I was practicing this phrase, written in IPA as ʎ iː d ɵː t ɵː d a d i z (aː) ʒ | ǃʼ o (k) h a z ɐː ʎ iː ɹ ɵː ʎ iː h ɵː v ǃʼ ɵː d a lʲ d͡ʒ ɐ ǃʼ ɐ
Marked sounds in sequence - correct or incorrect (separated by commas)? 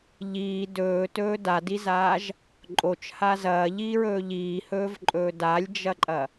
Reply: correct, incorrect